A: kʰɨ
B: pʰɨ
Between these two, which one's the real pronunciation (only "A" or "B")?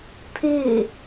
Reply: B